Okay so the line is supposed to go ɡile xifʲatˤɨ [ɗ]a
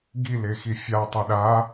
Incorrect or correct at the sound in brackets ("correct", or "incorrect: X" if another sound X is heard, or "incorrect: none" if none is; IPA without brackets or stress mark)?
correct